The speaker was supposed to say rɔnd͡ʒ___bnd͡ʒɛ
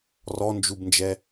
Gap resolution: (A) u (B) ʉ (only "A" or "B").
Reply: A